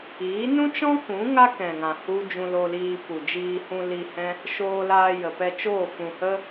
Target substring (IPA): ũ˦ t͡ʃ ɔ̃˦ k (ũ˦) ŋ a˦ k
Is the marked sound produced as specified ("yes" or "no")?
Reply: no